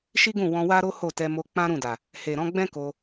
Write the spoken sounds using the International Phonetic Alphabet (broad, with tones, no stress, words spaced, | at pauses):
ʃi˦ɡũ˦˨ wɔ̃˧wa˦ɾo˦ ho˦˨tɛ˧mo˧ k͡pã˦ɾũ˦˨da˨ | he˨ɾɔ̃˨˦ɡ͡bɛ̃˦ ko˧